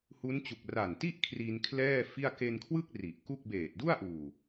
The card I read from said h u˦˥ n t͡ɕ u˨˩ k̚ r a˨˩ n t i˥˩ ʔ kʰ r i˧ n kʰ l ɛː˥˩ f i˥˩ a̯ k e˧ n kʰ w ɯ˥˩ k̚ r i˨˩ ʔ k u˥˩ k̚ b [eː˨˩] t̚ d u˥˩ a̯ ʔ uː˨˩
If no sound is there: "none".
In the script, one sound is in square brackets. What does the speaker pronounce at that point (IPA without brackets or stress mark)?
eː˨˩